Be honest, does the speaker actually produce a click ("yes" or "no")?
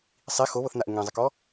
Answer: no